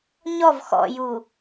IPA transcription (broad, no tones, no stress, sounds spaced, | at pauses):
ɲ ɔ v x ɔ̰ j u